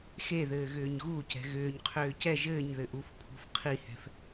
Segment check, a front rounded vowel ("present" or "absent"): present